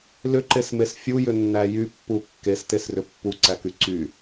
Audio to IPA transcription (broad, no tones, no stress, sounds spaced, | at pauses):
l ʏ ǃ e s m e s fʲ u j ʏ nː æ j y pː u kː e s t e s r ʏ pː u ǀ æ k y ǀ y